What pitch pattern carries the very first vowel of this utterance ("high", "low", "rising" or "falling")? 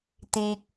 high